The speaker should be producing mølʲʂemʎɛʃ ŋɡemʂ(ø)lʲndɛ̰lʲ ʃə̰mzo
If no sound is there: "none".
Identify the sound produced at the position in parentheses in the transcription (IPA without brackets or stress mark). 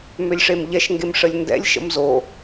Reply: ə